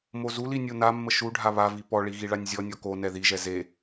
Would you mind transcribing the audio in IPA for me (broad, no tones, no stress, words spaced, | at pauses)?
mozuli nʲonamːə ʃuɖʱa βavi pɔɭi ɣiɭanʲzʲɔnʲɔ konɛ ðiʒɛ ze